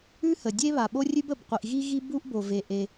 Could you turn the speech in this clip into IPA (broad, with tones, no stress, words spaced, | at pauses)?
ʉ˥hə˩dʲe˥βa˩ ɓo˥rʲʉ˥b ə˩b qʷi˩ʔ ɣi˥ɣi˥ bu˥ʔbo˩ve˩ ʔe˩